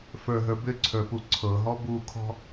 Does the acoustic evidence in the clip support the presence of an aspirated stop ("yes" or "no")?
yes